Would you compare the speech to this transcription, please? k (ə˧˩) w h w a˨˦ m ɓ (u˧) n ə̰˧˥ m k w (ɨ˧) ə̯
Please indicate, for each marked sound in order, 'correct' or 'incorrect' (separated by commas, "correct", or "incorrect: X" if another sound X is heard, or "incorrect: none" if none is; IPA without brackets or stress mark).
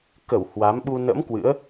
correct, correct, incorrect: ɨ̰˧˥